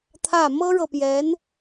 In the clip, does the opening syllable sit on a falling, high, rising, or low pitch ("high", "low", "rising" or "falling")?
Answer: falling